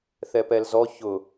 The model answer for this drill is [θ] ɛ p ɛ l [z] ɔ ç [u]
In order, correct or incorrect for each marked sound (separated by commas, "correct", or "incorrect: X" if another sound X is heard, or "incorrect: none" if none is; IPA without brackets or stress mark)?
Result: correct, correct, incorrect: ʊ